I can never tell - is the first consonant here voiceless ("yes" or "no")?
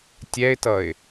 yes